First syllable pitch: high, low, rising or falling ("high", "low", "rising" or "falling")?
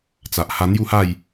low